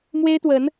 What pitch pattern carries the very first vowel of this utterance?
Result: high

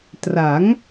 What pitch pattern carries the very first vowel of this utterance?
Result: rising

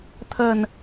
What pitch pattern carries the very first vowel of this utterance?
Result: low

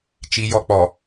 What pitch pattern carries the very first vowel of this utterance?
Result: high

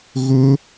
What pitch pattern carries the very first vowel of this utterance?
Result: high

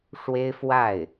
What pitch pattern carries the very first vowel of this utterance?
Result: high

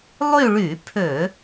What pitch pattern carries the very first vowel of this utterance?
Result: falling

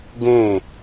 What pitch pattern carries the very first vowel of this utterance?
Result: falling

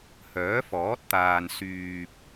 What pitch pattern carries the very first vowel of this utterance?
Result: rising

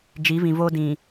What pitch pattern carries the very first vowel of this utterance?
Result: rising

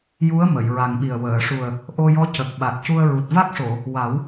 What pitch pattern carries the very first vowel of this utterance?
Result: rising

